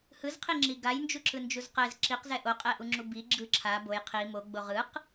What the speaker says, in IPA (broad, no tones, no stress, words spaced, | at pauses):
hɯzqʰiŋ͡ǁi ɡajnd͡ʒuǁɯnd͡ʒuz qɛz ǁiqzɛ ʔoqʼɛʔuŋ͡ǁu bi ɡ͡ǁɯ ǁʰa boj qʰi moɡ͡bo ʁɯq